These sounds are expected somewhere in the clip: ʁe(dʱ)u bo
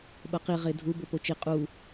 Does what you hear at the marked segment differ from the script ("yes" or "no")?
no